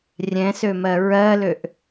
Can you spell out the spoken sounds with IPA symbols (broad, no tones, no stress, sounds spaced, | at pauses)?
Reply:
rʲ ɛ̃ s ø m ɜ ɹ ɜ l ø ʔ